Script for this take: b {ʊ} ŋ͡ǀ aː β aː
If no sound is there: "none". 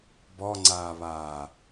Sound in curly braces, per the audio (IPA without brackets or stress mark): ɔ